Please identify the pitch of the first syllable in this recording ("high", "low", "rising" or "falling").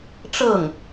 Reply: falling